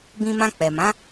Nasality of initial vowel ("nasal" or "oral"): nasal